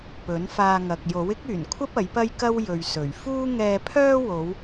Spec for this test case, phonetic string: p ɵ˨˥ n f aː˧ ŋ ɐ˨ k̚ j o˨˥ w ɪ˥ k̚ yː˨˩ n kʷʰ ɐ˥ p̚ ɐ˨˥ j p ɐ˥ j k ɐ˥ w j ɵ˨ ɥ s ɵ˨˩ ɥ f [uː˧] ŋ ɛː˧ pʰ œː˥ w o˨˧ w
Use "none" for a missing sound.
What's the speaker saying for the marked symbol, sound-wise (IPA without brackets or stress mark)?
uː˥